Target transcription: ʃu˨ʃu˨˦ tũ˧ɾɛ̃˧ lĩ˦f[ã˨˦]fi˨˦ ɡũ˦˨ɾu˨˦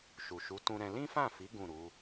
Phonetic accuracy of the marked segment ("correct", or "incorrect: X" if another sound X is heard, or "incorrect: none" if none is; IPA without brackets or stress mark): incorrect: ã˦˨